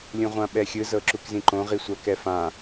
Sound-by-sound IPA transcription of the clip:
lʲ ũ ʁʷ ã ɓ ɛ xʲ ɯ z ɤ ǁ u k z ĩ ǃ õ ʁ i sʷ a k ɛ f ã

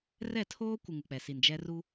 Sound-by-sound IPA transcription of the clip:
r ɛ˦˨ tʰ oː˦ kʷ ɪ˨ ŋ u˨ k͡p ɛ˨ s i˨ n d͡ʒ ɛ˦ r u˦

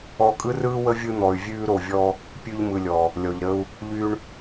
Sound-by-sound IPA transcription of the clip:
ɔ˧ kʼ ɯ˦ r ɯː˦ w ə˦ vʲ ɯ˧ n̪ ɔ˨ y̯ vʲ ʉː˧ ɾ o˨ vʲ ɔ˧ | pʲ ʉ˧ ʎ m ɯ˨ lʲ ɔ˨ | lʲ ɔ˨ ʎ ɾ ə˧ u̯ | ʎ y˧ ɳ

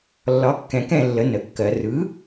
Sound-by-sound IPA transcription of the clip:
lː ɒ˩˥ kː ɛ̃˩˧ k ɛ̃˥˨ lː ə˩˥ n ə˩˧ kː ɜ˩˧ r ɯ˩˥

